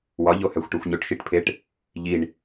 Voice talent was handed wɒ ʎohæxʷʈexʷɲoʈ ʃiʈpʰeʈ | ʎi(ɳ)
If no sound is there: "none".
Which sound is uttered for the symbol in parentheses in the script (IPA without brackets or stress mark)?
ɳ